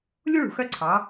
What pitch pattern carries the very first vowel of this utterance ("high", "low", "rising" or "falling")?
high